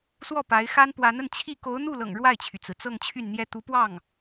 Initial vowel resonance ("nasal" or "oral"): oral